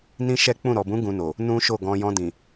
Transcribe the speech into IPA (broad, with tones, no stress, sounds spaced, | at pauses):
n ĩ˦ ʃ ɛ˦ k͡p ũ˦˨ ɾ ɔ˨ b ũ˨˦ ɡ ũ˧ n o˨ | n ũ˦ ʃ o˦˨ ɡ ɔ̃˧ j ɔ̃˧ d ĩ˨